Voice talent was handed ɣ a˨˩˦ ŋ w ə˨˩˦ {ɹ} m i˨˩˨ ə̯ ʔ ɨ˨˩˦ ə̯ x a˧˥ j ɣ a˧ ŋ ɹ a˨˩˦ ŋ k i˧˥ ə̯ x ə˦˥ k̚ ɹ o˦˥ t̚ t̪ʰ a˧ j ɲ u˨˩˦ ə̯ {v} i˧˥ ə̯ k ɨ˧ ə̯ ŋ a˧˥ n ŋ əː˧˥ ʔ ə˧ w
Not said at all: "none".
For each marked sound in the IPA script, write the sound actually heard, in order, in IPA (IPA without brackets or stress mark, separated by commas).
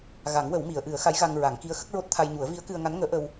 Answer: w, v